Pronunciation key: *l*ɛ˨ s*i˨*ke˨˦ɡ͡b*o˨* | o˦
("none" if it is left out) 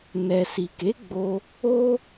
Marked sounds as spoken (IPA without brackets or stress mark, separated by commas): n, i˨, o˧